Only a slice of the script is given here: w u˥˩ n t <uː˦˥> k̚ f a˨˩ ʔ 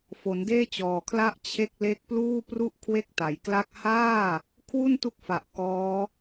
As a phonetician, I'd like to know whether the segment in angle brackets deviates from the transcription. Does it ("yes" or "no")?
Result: yes